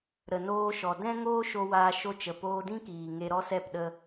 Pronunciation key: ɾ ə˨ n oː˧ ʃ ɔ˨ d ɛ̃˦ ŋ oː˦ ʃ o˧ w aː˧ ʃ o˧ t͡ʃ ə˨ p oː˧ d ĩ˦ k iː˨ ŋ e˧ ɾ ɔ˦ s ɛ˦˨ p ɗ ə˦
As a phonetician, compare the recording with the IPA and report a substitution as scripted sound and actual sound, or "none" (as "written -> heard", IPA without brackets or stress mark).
none